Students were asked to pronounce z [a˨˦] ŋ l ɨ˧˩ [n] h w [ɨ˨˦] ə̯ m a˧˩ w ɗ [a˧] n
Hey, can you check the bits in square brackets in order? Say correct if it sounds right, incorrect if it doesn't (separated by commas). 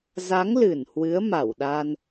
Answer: correct, correct, correct, correct